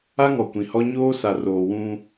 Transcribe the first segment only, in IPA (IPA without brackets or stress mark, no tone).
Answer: a